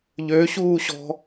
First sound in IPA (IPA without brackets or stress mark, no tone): ʎ